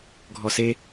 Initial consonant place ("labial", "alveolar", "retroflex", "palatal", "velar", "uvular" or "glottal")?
velar